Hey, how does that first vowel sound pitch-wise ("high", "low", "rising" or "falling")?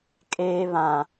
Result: high